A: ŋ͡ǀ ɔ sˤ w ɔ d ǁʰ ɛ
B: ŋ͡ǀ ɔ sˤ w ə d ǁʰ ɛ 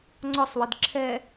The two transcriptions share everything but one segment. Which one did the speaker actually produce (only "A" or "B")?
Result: B